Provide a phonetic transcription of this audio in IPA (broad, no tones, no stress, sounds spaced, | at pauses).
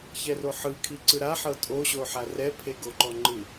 ç ɛ r o ħ ɯ kʰ i ǀ ɯ ɾ a ħ ɤ tʼ o ɕ o ħ a r ɛ pʰ e ɡ o ǃ ɔ ŋ͡ǃ ɯ